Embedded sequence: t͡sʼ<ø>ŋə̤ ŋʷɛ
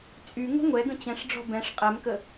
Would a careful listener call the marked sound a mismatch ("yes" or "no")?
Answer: yes